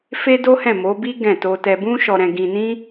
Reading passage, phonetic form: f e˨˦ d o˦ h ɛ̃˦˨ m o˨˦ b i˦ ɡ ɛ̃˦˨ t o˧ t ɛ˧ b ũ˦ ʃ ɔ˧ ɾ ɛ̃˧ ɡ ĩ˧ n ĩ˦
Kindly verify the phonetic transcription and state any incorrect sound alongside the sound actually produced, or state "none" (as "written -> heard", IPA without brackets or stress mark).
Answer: e˨˦ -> e˦